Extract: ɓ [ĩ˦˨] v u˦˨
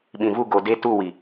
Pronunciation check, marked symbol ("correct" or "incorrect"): incorrect